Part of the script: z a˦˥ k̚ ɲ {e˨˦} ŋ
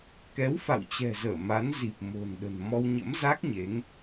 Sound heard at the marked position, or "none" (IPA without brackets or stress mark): e˨˦